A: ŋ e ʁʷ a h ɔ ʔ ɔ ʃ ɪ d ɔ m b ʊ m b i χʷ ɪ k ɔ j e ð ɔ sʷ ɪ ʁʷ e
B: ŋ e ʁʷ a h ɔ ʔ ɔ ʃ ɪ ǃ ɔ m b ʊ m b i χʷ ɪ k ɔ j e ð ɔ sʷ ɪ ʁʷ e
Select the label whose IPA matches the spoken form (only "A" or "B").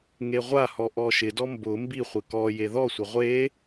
A